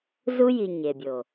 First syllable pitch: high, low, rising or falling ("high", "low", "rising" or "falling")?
high